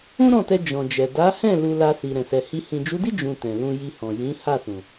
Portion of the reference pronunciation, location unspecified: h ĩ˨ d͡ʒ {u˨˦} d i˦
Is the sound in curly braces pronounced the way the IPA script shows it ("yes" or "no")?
yes